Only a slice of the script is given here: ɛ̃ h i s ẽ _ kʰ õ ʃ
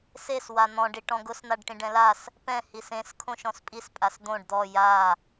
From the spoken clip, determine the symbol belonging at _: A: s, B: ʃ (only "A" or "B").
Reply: A